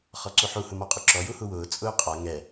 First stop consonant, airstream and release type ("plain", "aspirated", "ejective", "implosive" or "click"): click